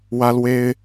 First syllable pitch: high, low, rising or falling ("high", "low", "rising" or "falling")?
high